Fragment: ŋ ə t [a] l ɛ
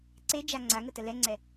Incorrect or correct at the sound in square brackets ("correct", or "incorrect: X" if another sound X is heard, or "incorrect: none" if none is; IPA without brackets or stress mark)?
incorrect: ə